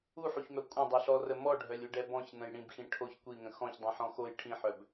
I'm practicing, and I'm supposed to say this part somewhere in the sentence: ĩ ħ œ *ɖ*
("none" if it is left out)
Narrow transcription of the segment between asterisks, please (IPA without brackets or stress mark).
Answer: b